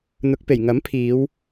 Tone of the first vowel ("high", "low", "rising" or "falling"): rising